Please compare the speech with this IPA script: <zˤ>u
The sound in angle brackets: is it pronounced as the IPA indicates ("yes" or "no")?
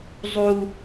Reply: yes